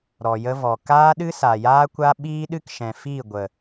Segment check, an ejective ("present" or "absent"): absent